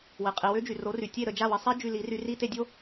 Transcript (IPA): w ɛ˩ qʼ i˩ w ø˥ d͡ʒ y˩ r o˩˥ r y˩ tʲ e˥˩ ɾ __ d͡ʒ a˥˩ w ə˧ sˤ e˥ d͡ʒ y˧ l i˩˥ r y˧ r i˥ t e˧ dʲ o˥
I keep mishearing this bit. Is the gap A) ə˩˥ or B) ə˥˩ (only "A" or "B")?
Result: B